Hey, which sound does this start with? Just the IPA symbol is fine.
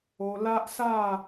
o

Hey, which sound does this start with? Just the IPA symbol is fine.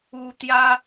u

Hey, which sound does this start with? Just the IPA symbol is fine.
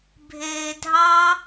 bʱ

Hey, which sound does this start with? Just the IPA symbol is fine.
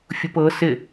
fʲ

